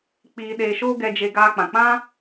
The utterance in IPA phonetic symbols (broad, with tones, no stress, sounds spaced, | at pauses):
k͡p iː˧ ɗ eː˧ ʃ oː˦ ɡ ɛ˧ d͡ʒ e˧ ɡ aː˧ k͡p ã˨ k͡p ã˦